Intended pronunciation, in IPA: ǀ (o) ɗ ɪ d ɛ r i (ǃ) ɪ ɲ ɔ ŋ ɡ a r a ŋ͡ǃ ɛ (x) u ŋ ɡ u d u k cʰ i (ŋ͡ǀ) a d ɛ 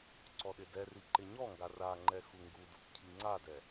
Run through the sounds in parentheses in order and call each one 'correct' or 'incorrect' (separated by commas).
incorrect, correct, correct, correct